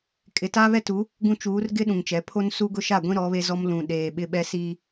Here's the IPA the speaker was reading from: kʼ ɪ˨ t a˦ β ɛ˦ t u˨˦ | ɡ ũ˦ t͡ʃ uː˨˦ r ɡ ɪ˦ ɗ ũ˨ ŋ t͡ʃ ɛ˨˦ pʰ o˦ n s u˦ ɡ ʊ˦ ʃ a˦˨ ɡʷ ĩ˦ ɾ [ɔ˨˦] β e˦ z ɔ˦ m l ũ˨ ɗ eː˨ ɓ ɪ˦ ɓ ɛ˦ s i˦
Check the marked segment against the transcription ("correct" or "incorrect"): correct